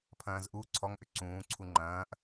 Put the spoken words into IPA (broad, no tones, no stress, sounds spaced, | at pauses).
pʰ ɐ̃ː z ʔ u ǀʰ ɔ ŋ ʔ ʏ ǀ ũː ǀʰ u ŋ͡ǃ ɐ̃ː ʔ